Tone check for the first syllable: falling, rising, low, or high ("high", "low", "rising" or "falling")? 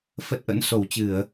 low